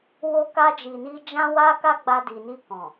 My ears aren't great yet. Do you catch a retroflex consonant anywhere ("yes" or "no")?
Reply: no